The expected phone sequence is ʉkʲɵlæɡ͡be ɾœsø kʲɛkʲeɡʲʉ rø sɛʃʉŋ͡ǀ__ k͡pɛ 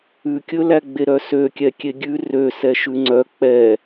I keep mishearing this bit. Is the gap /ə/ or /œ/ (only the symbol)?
œ